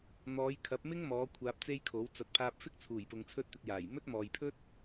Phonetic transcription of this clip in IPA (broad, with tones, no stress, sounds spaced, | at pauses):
n̪ ɔː˨˧ j kʰ ɐ˨˥ p̚ m ɪ˥ ŋ m ɔː˨˧ kʷʰ aː˧ p̚ t͡s e˥ j kʰ o˨˥ w t͡s ɐ˨ t̚ pʰ aː˧ p̚ f ɪ˥ k̚ t͡sʰ uː˨˩ j p ʊ˨ ŋ t͡sʰ ɵ˧ t̚ t̪ ɪ˨ k̚ j aː˨˩ j m ɵ˥ t̚ m ɔː˨ j pʰ ɵ˥ t̚